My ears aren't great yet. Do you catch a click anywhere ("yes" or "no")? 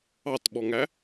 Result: no